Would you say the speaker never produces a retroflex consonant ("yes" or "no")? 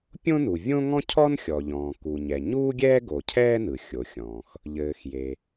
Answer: yes